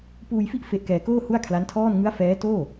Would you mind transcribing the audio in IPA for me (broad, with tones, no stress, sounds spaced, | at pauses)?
p uː˧ j f i˥˩ ʔ f e˦˥ ʔ k ɛː˧ k oː˥˩ h u˥˩ a̯ kʰ l a˦˥ n tʰ ɔː˥˩ n ŋ ɯ˦˥ a̯ f ɛː˦˥ t oː˥˩